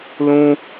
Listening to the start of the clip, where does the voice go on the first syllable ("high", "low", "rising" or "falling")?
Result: high